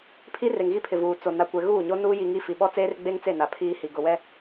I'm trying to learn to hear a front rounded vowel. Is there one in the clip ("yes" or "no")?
no